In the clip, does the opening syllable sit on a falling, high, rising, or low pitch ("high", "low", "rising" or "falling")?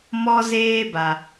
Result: high